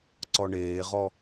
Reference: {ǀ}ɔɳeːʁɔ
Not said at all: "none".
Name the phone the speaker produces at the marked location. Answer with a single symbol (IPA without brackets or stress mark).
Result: ǀ